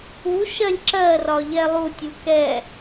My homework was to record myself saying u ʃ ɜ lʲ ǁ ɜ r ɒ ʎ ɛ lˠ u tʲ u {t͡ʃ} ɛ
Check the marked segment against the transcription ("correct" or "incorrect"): incorrect